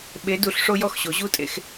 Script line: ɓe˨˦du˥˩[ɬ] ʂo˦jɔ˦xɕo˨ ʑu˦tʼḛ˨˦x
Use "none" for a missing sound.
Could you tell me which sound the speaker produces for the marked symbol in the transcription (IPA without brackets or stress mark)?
ɬ